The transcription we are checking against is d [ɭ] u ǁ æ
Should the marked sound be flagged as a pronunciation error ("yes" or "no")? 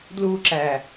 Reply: yes